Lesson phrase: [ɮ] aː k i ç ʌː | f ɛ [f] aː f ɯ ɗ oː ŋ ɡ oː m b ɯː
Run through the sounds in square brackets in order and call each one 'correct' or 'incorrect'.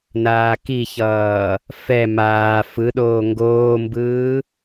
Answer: incorrect, incorrect

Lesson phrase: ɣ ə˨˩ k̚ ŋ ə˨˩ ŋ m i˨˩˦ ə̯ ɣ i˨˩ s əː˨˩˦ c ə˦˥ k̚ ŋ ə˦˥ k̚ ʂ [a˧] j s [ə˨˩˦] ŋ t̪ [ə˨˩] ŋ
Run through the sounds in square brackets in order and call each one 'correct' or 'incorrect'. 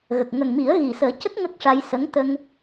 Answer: correct, incorrect, incorrect

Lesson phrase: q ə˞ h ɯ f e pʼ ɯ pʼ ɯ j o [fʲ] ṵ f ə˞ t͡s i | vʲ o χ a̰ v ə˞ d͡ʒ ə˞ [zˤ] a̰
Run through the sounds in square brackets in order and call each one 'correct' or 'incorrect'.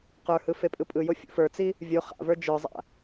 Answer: correct, correct

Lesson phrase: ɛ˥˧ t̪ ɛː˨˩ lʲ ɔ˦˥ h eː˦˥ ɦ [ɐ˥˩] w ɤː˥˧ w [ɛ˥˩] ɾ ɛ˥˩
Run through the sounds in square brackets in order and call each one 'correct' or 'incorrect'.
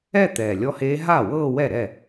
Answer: incorrect, correct

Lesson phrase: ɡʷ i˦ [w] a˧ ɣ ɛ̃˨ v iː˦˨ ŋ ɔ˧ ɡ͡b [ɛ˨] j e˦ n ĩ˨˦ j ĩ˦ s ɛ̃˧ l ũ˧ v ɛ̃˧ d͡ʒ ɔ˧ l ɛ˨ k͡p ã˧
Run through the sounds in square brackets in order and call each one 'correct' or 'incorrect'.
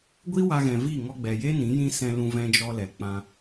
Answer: correct, correct

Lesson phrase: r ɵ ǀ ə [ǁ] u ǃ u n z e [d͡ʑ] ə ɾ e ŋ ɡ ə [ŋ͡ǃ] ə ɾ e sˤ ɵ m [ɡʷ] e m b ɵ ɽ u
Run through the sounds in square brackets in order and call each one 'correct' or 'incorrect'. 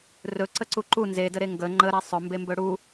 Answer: incorrect, incorrect, correct, incorrect

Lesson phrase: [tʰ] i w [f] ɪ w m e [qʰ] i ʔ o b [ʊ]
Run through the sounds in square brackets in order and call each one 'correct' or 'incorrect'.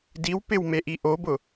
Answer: incorrect, incorrect, incorrect, correct

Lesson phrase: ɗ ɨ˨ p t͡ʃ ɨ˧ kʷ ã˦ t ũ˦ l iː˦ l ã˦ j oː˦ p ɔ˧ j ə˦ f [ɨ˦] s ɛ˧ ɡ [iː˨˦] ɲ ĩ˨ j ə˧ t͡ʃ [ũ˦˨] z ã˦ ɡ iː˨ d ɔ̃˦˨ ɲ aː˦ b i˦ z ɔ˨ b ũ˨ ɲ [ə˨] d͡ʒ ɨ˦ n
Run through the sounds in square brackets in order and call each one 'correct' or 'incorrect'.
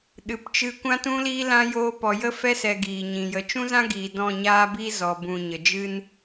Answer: incorrect, incorrect, incorrect, correct

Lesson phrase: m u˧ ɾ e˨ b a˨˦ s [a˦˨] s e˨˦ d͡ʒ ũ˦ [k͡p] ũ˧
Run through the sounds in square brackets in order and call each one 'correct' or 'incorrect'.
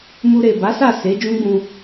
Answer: correct, incorrect

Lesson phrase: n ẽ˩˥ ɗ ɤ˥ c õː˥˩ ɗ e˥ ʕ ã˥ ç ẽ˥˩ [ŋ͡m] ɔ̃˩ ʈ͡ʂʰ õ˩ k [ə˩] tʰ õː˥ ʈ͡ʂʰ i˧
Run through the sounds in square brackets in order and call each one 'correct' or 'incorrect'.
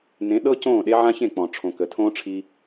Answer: incorrect, correct

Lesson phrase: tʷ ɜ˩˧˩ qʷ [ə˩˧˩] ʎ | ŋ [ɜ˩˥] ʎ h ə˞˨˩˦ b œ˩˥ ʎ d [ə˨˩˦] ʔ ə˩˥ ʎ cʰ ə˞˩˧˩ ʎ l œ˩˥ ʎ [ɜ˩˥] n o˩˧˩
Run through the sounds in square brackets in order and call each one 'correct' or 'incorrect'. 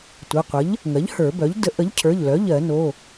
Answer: incorrect, correct, incorrect, incorrect

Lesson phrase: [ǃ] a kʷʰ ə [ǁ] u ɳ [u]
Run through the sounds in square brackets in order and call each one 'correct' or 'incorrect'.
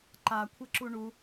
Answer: correct, correct, correct

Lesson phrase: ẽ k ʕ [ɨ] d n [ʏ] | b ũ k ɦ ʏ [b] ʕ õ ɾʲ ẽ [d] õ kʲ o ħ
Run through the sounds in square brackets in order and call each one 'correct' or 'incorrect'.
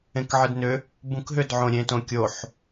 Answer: correct, correct, incorrect, incorrect

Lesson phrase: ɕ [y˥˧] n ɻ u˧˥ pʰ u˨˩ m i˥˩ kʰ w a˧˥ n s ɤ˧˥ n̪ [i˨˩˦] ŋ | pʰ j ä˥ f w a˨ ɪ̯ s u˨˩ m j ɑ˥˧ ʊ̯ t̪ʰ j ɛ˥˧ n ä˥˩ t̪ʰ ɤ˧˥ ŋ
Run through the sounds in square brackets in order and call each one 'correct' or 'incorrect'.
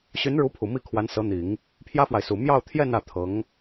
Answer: incorrect, correct

